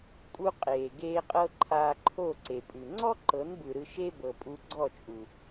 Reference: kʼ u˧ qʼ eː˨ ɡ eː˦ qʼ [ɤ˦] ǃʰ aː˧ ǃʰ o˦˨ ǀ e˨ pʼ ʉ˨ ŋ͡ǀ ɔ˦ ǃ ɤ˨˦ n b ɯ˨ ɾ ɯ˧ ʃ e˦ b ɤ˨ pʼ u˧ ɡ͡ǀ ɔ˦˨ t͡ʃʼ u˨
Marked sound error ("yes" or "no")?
no